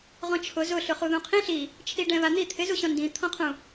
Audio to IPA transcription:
ʁ ɔ̃ t͡ʃʰ ʊ z ʊ ɬ ʊ χ u ð ũ qʰ ĩ ɬ i | t͡ʃʰ i ɖ ɛ̃ β a n̪ i t̪ʰ ɪ z u ɕ ɔ̃ n d ĩ t̪ʰ ɔ̃ qʰ ũ

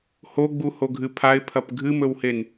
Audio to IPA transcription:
h o ɡ͡b u h o ɡʱ ɨ pʰ a ɪ̯ pʰ ɐ p ɡʱ ɨ m ɵ w h e n

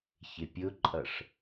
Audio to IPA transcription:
ç ɪ pʲ ʊ ǃʼ ʌ ʂ

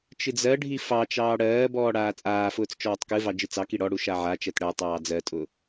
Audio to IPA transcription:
t͡ʃ ɨ d͡z ɜ ɖʱ i f ɑ t͡ʃ ɑː ɽ ɜː b ɔː ɽ aː t͡sʼ aː f ʊː t͡s t͡ʃ ɔː tˤ k ɨ v ɑ d͡ʒ ɨ t͡s ɑ k i ɽ ɔ ɽ u ʃ a ʕ a t͡ʃ ɜ t ɽ ɜ tˤ ɑː d͡z ɜ tʼ ʊ

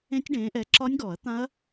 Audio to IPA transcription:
ẽ˦˥ tʲ ɖ ẽː˨˦ ʔ ɛ˨˦ ǁ ɒ˦˥ nʲ ɡ ɔ˨˩˦ ɐ̯ t̪ ã˦˥ ɐ̯

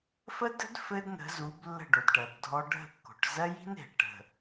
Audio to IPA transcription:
f ə˦ d ə̤˦ d f ɘ˦ d n ə̤˨˦ z u˨˦ b lː ə̤˦˨ ɖ o˨ d ʈ ɜ˨ b dʱ ɔ˦ ɖʱ ə̤˦˨ kː o̤˨ ʈ z ɜ˦ j i̤˦ n e̤˨ ʈ ə̤˨

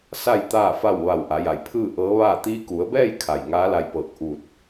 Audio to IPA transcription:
s a˥˨ j t̪ aː˥˨ f a˥˨ w ʋ a˧˩ w ʔ a˩˧ j a˧˩ j pʰ ɯː˥˨ ʔ ɤː˧˥ ʋ aː˥˨ t̪ iː˧ k u˩˧ ə̯ b ɛː˥˨ j kʰ a˧˩ j ŋ aː˧˥ l a˧ j p ɤː˧˩ k̚ ʔ u˧˩ t̚

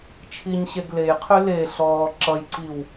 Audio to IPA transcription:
t͡ʃʰ i ɲ ɕ e ɡ l e j qʰ y l e ɬ ɔː ǁ ʌ j ǀ i w

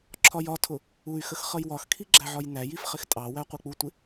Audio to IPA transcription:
ǁʰ ɒ j ɒ tʰ ʊ | u y̯ x ə x χ ʌ j w ɒ x kʰ i ɡ͡ǁ æ ʕ ɒ j n æ j i f χ ɪ x tʼ ɑ w æ qʷ ɜ k͡p u tʷ ɪ

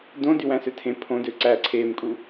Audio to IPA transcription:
d õ d y w æ̃ s ø tʰ ẽ pʰ õ d ø ǀ æ ǀʰ eː m kʼ u

